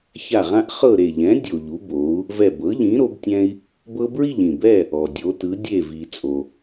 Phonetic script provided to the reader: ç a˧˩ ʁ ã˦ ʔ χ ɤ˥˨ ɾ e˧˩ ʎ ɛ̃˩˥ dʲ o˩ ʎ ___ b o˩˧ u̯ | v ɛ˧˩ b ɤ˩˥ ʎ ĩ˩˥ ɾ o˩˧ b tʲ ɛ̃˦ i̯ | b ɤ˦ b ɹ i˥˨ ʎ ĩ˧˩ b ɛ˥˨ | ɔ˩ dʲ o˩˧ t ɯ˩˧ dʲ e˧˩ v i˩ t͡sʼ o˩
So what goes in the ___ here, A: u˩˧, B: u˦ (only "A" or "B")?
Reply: A